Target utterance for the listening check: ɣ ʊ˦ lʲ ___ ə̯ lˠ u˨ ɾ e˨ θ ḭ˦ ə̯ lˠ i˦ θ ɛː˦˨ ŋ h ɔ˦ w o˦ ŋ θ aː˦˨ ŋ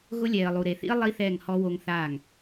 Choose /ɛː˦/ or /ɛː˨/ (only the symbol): ɛː˨